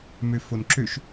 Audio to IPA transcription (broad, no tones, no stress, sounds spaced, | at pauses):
m ø f o n ǁ ø ʃ